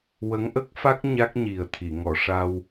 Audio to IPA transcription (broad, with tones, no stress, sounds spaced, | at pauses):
w ə˧˥ ŋ ʔ ə˦˥ k̚ f a˦˥ k̚ ɲ a˦˥ k̚ ɲ i˨˩ ə̯ t̪ʰ i˨˩˨ ŋ ɔ˨˩˨ ʂ a˧ w